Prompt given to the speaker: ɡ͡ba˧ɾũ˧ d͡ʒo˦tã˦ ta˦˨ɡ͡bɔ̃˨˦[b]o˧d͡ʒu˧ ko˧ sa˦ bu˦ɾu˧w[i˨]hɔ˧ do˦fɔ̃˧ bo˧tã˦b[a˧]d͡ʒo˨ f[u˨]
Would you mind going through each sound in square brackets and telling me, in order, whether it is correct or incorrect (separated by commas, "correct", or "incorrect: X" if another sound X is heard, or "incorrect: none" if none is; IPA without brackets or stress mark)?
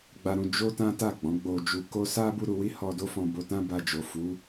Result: incorrect: ɡ͡b, incorrect: i˦, correct, incorrect: u˨˦